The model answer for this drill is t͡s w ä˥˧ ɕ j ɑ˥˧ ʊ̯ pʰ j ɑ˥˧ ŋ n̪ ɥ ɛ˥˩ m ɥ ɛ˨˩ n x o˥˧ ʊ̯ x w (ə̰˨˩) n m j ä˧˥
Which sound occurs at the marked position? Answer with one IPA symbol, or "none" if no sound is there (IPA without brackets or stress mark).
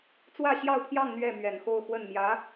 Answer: ə˥˩